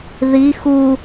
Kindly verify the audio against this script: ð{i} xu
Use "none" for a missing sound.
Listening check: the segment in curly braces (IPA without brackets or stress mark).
i